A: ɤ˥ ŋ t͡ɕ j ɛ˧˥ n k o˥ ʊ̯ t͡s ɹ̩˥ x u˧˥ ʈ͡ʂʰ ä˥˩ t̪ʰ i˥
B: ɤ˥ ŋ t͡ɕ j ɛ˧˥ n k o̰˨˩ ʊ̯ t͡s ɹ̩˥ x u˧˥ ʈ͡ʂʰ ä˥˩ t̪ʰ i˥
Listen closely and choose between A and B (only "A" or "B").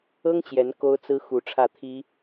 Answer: A